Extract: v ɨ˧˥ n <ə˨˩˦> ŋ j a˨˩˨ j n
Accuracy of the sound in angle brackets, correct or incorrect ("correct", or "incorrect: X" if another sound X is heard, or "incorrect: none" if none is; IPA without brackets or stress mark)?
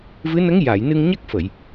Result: incorrect: ə˧˥